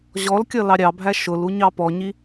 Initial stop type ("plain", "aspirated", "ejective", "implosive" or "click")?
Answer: plain